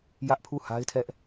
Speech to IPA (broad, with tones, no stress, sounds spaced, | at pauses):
j ä˦ ʔ pʰ u˦˨ h a˦ ɪ̯ tʰ ɛ˦ ʔ